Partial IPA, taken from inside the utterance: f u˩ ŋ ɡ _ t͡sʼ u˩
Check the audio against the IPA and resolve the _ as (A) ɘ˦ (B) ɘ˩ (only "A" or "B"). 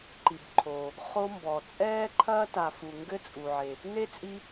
A